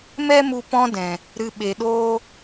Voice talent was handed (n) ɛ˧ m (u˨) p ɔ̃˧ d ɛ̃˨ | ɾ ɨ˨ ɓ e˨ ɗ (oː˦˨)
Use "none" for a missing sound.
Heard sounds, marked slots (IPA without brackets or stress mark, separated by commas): m, u˨, oː˧